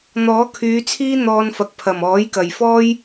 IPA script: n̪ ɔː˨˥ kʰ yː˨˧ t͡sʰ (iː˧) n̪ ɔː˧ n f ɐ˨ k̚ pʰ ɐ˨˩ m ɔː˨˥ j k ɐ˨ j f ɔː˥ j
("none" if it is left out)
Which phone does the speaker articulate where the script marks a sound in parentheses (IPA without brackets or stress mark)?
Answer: iː˥